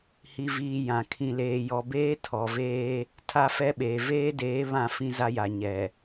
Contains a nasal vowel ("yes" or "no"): yes